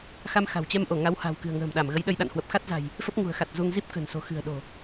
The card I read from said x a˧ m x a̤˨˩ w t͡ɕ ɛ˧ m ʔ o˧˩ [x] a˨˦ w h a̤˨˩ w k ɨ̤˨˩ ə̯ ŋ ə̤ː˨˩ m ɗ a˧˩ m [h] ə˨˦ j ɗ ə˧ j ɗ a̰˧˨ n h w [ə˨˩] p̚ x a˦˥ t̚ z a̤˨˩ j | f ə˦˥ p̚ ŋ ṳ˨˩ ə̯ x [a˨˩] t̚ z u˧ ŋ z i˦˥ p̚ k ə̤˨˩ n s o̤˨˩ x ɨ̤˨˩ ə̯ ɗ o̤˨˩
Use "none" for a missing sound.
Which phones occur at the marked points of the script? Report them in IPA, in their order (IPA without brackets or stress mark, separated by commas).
ŋ, ɣ, ə˨˩, a˨˩